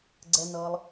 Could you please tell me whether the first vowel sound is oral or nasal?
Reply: oral